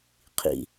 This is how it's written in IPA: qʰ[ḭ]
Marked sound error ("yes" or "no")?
no